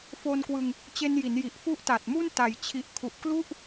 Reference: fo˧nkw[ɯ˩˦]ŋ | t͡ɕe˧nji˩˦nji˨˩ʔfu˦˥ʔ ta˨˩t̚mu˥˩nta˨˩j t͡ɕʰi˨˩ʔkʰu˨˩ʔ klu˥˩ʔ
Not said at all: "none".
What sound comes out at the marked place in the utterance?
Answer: ɯ˧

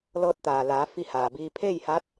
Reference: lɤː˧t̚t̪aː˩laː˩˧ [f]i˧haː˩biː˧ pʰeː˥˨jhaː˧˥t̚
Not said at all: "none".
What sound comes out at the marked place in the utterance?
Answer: f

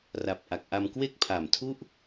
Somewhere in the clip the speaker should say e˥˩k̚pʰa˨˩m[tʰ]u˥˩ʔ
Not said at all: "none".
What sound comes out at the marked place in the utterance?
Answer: tʰ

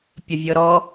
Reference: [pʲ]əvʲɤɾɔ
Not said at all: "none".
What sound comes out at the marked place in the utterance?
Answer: pʲ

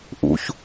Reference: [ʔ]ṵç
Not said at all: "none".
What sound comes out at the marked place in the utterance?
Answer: ʔ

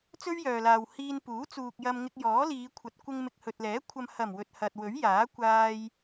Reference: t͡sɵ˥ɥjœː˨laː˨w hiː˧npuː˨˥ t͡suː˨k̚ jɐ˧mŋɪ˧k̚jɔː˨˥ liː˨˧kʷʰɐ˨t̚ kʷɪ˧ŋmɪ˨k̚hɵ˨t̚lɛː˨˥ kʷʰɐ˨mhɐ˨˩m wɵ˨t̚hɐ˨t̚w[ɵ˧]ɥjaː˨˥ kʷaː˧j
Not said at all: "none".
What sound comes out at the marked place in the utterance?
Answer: ɵ˨˥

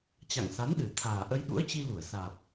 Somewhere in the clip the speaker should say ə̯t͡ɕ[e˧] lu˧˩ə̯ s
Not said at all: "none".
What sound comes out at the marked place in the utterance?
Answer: i˧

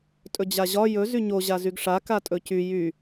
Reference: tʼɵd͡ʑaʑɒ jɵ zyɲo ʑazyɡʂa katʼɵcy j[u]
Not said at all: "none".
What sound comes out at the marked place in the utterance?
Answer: y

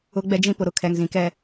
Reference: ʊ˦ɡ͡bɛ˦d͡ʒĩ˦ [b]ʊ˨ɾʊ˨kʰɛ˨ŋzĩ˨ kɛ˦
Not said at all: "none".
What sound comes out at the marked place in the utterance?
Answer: p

